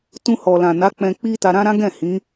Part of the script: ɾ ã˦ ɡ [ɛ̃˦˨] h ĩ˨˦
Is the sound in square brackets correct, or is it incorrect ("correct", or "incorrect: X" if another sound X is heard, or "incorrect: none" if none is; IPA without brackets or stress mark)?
correct